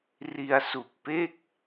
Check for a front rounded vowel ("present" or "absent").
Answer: absent